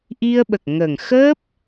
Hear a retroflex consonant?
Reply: no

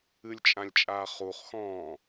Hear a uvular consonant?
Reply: yes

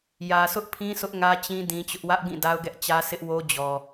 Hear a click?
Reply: no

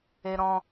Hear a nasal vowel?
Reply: yes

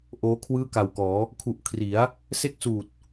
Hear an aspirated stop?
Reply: yes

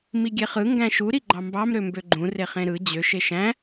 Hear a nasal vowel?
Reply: yes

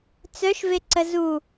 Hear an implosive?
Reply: no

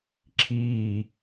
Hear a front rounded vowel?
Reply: no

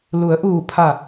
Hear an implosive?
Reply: no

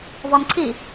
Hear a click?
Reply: yes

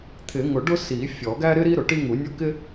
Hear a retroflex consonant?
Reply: yes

